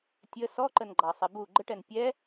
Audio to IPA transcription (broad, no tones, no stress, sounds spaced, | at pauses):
tʲ ə s ɔ ǃ ə n ɡ͡ǃ ɑ sˤ ɪ b u ɡ͡ǃ ə ʈ ɛ n pʲ ɛ